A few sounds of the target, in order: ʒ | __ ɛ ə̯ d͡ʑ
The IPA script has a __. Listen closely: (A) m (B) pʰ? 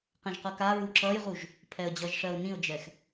B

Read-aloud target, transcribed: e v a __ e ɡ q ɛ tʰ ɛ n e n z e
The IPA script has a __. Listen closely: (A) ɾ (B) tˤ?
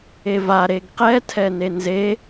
A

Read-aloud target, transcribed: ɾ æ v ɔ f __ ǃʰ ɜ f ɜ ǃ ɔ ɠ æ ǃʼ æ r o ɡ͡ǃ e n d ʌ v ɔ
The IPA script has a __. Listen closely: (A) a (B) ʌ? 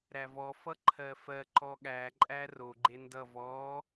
B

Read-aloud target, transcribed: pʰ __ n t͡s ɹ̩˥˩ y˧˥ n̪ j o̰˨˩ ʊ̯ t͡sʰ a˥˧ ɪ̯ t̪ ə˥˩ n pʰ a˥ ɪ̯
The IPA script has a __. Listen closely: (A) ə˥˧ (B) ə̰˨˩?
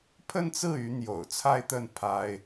A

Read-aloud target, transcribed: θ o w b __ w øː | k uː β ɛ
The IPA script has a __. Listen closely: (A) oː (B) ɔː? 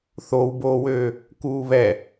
A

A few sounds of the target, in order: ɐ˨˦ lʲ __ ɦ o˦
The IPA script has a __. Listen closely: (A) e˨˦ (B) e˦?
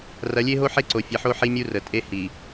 B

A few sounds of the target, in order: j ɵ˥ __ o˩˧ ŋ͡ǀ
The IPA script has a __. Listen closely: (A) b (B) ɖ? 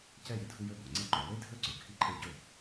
A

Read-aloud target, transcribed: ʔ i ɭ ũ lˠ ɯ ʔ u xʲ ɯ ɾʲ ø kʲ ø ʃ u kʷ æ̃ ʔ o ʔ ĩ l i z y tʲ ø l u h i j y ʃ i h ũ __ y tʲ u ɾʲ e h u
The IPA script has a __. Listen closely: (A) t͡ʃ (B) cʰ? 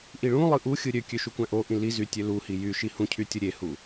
B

